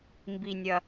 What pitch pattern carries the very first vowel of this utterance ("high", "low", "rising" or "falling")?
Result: low